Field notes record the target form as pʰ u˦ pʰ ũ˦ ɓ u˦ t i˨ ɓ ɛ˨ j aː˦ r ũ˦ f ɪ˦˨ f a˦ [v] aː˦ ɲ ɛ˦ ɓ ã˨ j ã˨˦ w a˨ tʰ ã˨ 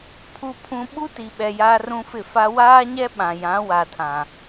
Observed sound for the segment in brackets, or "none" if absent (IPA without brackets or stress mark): w